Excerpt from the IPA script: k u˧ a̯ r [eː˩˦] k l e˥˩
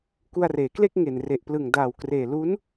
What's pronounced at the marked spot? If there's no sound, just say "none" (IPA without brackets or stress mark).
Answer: eː˩˦